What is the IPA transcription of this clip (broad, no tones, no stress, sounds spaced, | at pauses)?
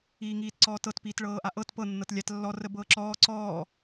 iː ŋ iː t ǀ ɔː t ɤ t p iː t ɭ ɤː ʔ a ʔ ɤ t p ɤ nː ɤ t lʲ a t lː ɔ r ə b ɤː ǁ ɔː ǀ ɔː